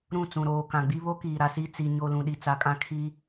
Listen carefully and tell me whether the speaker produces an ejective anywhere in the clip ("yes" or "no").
yes